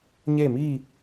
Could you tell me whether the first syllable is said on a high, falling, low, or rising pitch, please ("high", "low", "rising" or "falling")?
falling